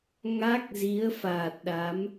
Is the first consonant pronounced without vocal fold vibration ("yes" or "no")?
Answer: no